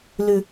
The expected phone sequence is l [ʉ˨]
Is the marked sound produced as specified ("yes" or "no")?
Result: yes